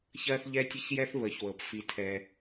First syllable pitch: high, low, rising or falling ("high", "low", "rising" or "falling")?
high